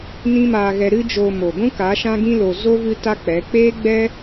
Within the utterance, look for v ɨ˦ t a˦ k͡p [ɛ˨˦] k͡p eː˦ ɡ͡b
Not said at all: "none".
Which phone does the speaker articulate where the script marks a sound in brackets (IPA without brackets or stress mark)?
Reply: ɛ˨˦